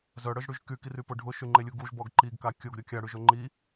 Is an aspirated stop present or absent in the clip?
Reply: absent